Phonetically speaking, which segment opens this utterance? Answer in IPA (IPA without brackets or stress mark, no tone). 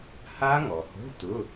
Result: h